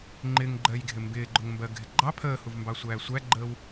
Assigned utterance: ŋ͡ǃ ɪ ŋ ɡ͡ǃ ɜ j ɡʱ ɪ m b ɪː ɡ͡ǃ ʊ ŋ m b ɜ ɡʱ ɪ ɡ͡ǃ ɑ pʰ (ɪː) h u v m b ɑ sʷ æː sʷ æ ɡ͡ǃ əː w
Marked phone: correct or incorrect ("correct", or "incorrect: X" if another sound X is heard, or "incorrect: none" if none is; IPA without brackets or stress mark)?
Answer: incorrect: əː